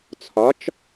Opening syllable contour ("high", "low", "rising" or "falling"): rising